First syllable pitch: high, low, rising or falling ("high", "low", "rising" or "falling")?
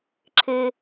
high